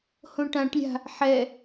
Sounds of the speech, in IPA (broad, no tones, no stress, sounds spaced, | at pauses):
h õ ʈ ã ʈ lʲ a̤ | ħ ɛ